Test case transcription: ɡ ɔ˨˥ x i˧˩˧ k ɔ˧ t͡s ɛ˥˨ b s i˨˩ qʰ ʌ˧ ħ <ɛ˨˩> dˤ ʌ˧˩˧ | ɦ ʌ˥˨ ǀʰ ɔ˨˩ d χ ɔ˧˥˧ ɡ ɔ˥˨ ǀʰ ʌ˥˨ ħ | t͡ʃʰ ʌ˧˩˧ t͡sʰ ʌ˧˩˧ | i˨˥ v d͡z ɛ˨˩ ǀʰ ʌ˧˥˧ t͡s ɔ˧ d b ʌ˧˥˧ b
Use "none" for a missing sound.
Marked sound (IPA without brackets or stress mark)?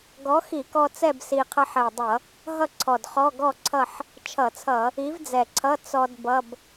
ɛ˨˩